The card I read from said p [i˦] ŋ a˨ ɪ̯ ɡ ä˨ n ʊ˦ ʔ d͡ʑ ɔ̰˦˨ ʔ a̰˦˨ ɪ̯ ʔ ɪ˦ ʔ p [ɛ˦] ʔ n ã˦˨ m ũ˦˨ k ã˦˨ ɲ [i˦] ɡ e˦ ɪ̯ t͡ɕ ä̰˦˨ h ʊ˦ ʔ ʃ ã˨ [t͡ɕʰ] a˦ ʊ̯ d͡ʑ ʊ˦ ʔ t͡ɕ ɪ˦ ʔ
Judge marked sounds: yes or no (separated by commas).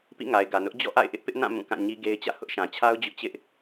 no, no, yes, yes